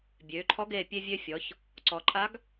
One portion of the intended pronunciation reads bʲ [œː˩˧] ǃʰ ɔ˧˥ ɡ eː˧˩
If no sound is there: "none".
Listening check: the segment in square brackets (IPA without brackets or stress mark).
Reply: øː˩˧